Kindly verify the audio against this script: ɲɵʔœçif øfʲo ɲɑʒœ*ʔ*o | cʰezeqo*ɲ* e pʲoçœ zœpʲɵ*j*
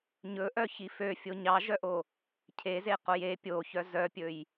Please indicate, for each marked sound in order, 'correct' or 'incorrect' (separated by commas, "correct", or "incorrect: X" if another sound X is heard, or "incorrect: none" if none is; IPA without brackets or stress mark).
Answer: correct, incorrect: j, correct